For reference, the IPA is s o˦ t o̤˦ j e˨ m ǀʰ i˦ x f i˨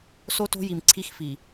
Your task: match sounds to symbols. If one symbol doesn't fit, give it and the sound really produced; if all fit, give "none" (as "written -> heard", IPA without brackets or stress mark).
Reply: e˨ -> i˨